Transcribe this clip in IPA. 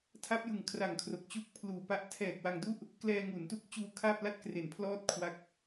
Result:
tʰa˦˥p̚jɯ˨˩ŋ kʰra˨˩ŋkʰro˨˩k̚ t͡ɕu˥˩k̚ pʰluː˨˩pa˦˥ʔ tʰɛː˨˩k̚wa˧ŋdu˥˩ʔ | klɛː˧ŋu˩˦ntu˦˥k̚ t͡ɕuː˧kʰa˥˩p̚la˥˩t̚ kre˨˩npʰlɔː˥˩t̚ kʰwa˦˥k̚

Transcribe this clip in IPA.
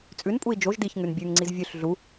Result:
t͡sʼʉnpʼui̯ d͡ʒoʒ diç ŋʉnbʲʉŋŋ͡ǀiz vʲʉɬ ɮu

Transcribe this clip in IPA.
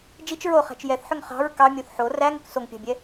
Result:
d͡ʒit͡ʃ ɹoχæ̤t͡ʃ jɛθħʏŋ χɑ̤ɹ kɑmʲoθ ħo ræŋʏk soŋpʲɑ̤bʲɛ

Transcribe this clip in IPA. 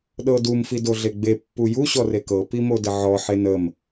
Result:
ɗɤdum fidoɮeɡ͡be pːuju ɕɔrekɤ pimodəʕɔ ħenəm

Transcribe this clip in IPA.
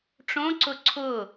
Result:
ʈ͡ʂõǀʊ ǀʰʊ

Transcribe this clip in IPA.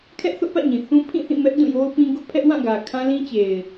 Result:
kʰɛ˦ʔθʊ˦ʔpä̰˦˨ ɲĩ˨θũ˦ pʰĩ˦˨θĩ˦˨ mɛ˦ʔ dũ˦˨jo˦ʊ̯pĩ˦ ɡʊ˦ʔpʰɛ˦ʔwã˦˨ɡä˨ kʰã˦ lĩ˦t͡ɕe˨ɪ̯

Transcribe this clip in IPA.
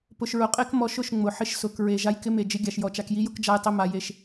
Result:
pʊ˧ʃɹʊ˧ qʼe˦kmɔ˧ʃʊ˦˨ʃ ŋ͡mʊ˨ħɪ˦ʃsʊ˨˦kɹe˨ ʒa˦jkɪ˦me˧ d͡ʒɪ˦ɡʲa˧ʃjɔ˧ t͡ʃa˧kji˦jʊ˦k d͡ʒa˧jtˤɪ˧ma˨ je˧ʃ

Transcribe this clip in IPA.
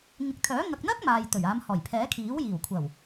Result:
ŋɪ˨k̚t̪ʰœː˨˥ ŋɐ˨k̚n̪ɐ˥k̚ maː˨jt̪ɵ˨˩ɥaː˨˧mhɔː˨˩j pʰɛː˨˥kʰiː˨˥w jiː˨˩wkʷʰɐ˨˩w

